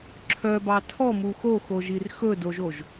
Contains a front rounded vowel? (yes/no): yes